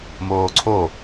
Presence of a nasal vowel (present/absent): absent